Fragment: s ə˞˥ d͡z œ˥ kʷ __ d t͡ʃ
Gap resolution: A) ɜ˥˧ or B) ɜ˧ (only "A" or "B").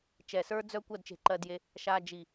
A